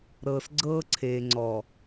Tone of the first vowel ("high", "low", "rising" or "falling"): low